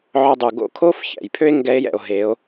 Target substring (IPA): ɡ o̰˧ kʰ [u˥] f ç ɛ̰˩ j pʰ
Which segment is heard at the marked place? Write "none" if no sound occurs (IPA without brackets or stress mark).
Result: o˥